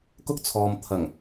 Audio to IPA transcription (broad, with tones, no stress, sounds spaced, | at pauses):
k ʊ˥ k̚ t͡sʰ ɔː˨ m t̪ʰ ɐ˨˩ ŋ